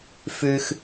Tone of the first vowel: high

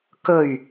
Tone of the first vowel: low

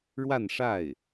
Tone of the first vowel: falling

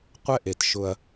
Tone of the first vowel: high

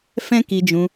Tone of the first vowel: high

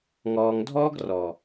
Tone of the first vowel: low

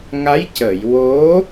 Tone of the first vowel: rising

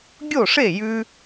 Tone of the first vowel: falling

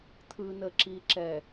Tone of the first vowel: low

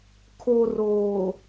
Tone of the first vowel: low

